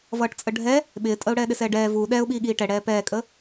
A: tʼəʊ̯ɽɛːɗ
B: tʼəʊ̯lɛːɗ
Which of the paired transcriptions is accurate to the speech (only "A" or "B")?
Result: A